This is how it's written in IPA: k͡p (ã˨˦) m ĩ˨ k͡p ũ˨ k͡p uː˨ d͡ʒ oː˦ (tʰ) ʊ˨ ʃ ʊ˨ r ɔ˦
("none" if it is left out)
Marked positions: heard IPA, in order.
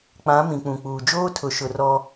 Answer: ã˨˦, tʰ

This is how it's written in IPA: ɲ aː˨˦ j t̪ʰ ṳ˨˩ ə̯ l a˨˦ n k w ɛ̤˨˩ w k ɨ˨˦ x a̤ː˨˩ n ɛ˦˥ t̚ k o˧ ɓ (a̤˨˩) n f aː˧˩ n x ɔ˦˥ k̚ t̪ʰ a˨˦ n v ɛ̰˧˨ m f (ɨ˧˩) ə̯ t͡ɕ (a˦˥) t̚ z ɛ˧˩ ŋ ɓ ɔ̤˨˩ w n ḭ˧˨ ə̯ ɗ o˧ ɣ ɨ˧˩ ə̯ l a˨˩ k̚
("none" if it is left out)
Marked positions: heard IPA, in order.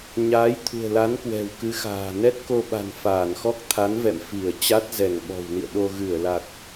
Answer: a̤˨˩, i˧˩, a˦˥

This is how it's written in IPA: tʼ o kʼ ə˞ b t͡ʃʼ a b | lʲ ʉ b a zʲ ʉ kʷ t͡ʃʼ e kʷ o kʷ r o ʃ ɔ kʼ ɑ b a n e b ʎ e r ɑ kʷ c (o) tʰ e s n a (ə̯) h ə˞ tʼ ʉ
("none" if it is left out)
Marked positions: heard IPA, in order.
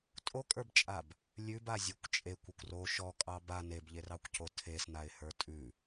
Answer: o, ɪ̯

